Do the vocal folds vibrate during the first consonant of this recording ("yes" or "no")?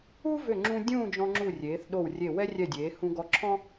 yes